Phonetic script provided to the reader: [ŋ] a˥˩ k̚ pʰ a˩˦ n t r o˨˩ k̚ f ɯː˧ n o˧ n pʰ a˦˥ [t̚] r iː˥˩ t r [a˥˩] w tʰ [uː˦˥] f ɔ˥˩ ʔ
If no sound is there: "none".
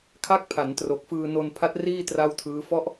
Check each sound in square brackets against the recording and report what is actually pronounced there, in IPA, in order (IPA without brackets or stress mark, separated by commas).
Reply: kʰ, t̚, a˥˩, ɯː˦˥